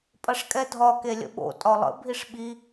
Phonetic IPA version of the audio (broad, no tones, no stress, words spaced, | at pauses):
pʼɐʂkʼɛdʱɒ kelʲə̰ɓo̰ tʼɒlˠə̰ bʱiʂɓi